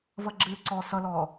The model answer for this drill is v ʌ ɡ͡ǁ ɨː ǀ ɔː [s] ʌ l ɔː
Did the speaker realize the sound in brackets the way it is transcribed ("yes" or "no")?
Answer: yes